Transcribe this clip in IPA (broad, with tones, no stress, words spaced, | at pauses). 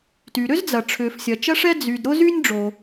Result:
ty˩ɾʏ˥zd͡zɐ˩ ʈ͡ʂʰʏː˩fsʲɐ˩t͡ʃɐ˥ʂɛ˥ d͡zy˩d ɾʊ˥zy˥nʲɖ͡ʐo˩